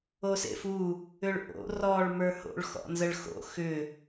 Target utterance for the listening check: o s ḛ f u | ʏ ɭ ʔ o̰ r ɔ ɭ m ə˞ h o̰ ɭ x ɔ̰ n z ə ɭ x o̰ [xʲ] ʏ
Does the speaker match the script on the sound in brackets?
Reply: no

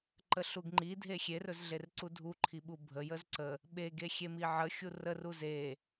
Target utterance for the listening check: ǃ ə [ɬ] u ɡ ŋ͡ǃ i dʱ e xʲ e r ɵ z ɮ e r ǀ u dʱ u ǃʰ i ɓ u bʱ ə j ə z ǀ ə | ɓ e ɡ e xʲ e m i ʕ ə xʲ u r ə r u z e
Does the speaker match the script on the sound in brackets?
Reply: yes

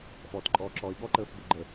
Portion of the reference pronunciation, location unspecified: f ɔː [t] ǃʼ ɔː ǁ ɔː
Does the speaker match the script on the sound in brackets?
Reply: yes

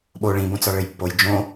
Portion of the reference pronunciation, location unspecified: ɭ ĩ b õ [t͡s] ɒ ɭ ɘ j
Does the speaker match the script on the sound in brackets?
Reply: yes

